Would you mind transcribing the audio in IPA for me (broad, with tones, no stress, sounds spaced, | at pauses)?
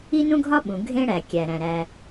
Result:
i˥ n ũ˥ ɡʱ ɒ˥ ɓ ũ˩ ɡʱ ẽ˦ ɽ æ˩ kʲ æ˩ ɾ æ̃˩ ɾ æ˨